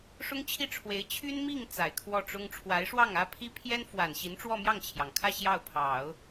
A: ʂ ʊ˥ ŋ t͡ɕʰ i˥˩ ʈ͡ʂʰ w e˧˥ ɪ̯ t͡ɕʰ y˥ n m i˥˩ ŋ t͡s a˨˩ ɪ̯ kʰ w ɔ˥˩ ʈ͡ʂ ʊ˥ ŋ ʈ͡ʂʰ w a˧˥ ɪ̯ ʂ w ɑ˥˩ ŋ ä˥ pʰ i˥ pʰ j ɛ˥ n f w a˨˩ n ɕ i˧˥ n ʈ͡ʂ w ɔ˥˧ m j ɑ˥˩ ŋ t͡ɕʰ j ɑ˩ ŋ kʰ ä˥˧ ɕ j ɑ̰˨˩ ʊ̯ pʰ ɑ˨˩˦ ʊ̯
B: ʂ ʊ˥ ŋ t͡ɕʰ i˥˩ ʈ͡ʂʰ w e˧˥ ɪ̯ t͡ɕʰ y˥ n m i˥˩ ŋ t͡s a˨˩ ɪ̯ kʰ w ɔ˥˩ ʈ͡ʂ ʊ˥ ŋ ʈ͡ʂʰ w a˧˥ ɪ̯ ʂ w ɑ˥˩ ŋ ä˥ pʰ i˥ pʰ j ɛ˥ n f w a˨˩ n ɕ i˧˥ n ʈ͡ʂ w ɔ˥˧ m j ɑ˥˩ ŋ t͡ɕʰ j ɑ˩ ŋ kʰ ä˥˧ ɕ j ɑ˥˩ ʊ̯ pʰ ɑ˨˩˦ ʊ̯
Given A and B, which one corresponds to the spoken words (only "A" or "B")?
B